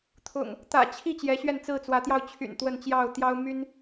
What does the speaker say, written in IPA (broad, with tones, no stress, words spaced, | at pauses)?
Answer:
t̪ʰʊ̰˨˩ŋ | t̪ä̰˨˩t͡ɕʰi˥˨ t͡ɕjɛ˨˦ɕɥɛ˥˨n t͡sɹ̩˥˨t͡swä˨˦t̪jɑ˧ʊ̯ t͡ɕʰy̰˨˩nt̪wə˥˨nt͡ɕjɑ˥˨ʊ̯ t̪jɑ˦ʊ̯ my˦n